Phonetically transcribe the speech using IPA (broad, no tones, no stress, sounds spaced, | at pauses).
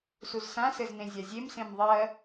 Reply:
s u z s ã s ɘ z n ẽ zʲ a zʲ e m s ẽ m ðˤ ɜ